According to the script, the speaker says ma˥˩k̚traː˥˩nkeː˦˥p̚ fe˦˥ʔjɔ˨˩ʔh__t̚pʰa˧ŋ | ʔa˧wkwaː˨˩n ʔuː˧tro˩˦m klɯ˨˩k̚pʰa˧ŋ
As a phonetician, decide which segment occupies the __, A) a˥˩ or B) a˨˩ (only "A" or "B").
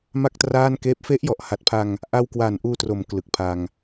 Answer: B